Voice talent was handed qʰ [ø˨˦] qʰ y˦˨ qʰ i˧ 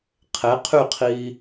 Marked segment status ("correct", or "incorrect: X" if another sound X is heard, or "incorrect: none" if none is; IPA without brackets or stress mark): incorrect: e˨˦